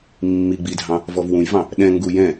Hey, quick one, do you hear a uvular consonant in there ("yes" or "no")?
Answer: no